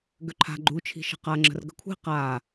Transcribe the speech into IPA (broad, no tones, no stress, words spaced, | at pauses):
ɡøǃʰa̤ ɡ͡ǃut͡ʃʰi̤ʃə̤ qa ŋ͡ǁə̤rɡə̤kʷʰi̤ qa